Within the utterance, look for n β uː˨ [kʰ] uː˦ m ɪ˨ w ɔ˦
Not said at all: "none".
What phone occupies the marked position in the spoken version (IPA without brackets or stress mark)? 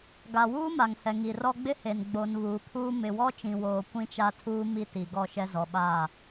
kʰ